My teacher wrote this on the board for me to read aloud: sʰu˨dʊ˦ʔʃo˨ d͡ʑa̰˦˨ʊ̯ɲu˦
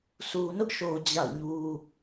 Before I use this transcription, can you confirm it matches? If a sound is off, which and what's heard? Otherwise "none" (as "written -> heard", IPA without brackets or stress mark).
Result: d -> n